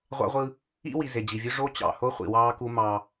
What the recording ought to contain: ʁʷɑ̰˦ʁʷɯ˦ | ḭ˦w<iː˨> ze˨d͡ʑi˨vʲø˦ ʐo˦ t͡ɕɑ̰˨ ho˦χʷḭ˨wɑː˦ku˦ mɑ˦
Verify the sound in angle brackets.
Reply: incorrect: i˨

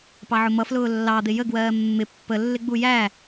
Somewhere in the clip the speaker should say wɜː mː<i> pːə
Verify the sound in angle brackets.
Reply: incorrect: ɪ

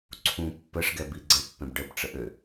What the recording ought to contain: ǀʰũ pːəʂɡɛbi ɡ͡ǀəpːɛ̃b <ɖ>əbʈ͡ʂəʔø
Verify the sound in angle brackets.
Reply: correct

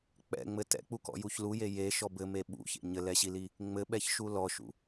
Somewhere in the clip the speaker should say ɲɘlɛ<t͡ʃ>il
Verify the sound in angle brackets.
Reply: incorrect: ɕ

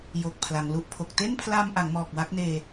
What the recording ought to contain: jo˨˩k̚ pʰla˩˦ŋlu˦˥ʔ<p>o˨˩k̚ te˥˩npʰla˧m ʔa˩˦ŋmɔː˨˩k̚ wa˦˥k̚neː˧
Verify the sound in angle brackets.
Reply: incorrect: pʰ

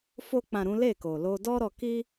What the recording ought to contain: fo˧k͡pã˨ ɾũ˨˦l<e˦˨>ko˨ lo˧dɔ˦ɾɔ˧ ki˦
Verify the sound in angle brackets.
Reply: correct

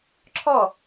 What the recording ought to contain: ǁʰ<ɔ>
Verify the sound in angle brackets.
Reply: correct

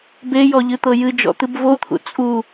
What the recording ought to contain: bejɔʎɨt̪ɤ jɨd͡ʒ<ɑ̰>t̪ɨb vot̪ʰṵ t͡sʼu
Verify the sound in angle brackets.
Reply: incorrect: ɔ̰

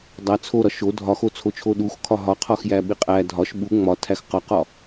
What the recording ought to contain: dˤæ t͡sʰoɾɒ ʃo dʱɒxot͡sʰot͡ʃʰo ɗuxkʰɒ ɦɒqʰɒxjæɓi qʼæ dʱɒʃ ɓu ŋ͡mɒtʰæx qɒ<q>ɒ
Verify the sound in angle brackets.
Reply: correct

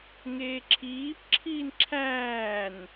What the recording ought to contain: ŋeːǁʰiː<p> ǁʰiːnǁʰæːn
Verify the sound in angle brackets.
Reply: correct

